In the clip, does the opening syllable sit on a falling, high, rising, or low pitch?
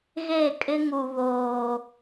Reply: falling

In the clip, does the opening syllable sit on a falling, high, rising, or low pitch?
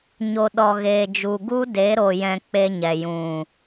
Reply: low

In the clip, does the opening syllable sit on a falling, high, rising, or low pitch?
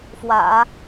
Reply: low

